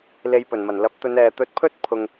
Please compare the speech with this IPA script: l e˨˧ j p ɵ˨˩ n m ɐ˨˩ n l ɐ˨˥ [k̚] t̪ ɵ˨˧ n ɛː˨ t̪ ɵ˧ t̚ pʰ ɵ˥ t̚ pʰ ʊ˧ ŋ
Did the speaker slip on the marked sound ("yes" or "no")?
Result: yes